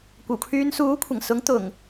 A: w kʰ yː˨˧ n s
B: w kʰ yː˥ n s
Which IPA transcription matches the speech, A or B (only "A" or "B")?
A